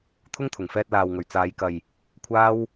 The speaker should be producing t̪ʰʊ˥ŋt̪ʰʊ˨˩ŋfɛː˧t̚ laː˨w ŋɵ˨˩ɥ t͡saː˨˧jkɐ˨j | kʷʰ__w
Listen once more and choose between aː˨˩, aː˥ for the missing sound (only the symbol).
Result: aː˥